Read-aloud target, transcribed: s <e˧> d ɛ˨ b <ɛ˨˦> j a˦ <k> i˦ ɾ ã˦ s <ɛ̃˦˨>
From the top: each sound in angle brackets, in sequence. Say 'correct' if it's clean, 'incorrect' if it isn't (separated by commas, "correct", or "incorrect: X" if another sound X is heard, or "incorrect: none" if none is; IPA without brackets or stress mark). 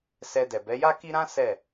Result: incorrect: ɛ˧, correct, correct, incorrect: ɛ˦˨